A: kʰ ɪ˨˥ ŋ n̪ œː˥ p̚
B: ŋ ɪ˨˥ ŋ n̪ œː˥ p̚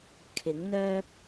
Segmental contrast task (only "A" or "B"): A